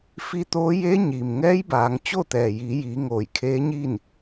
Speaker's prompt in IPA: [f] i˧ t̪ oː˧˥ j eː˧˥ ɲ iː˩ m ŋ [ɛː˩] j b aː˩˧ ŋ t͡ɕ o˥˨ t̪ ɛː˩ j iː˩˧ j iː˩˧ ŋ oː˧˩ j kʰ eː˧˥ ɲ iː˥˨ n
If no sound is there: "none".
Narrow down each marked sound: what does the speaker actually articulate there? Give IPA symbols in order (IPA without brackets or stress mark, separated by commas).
f, ɛː˧˥